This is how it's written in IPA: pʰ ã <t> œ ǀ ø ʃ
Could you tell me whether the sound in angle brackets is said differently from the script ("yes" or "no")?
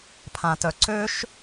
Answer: no